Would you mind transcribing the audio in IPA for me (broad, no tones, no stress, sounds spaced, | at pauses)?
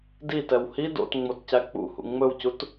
d i t ɛ w h i d o̰ t ŋ͡m o t c æ k͡p ṵ h ṵ ŋ͡m ɵ w c u t